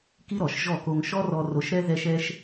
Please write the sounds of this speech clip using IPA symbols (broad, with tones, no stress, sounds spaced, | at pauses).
k i˥ ɾ ɔ˩ ʃ ʒ ɔ˥˩ k o˧ ŋ ʃ ɔ˥ r ɔ˧ r o˧ ʃ ɾ ɛ˥ ð ɛ˥ ʃ ɛ˥ ʃ